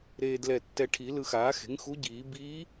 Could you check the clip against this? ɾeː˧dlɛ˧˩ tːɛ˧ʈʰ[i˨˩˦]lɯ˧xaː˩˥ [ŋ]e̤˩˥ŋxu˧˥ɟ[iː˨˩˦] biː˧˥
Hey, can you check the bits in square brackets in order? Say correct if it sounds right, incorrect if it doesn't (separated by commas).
correct, incorrect, correct